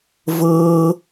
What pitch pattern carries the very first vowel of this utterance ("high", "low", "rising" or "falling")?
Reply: high